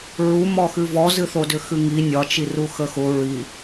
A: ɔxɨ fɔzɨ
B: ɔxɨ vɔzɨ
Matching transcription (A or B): B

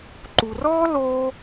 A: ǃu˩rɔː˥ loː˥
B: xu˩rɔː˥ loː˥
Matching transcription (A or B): A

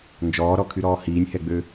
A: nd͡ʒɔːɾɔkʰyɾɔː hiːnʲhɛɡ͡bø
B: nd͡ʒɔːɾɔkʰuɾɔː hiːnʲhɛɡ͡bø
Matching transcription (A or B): A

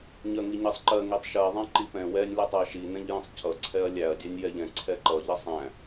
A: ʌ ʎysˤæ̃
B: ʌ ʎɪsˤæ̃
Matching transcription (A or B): B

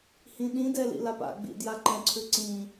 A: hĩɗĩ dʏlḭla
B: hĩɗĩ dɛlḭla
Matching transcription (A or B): B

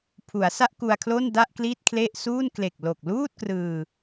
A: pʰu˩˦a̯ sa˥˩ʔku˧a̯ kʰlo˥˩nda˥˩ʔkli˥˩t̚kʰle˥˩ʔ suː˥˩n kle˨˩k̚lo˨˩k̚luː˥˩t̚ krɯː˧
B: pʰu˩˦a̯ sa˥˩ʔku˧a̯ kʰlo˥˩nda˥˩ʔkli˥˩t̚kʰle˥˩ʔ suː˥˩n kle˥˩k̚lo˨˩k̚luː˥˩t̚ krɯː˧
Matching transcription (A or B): A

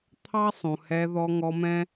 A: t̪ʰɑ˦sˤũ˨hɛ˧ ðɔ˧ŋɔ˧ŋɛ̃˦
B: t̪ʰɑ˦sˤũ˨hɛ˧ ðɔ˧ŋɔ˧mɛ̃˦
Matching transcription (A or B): B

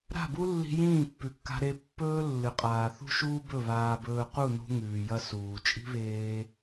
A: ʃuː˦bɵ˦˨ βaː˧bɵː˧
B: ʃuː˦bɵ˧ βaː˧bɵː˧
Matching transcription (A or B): A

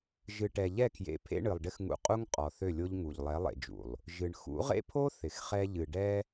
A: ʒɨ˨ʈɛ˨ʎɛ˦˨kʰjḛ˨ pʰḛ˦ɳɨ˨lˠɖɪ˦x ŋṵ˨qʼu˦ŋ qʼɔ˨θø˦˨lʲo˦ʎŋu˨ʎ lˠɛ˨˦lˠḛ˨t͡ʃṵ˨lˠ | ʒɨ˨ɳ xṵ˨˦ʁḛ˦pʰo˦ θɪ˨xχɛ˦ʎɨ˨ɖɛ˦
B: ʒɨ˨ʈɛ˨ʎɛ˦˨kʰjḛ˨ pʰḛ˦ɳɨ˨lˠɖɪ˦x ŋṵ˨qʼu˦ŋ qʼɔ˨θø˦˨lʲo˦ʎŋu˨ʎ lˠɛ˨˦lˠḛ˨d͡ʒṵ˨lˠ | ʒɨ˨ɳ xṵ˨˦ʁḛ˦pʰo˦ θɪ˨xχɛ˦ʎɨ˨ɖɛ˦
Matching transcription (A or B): B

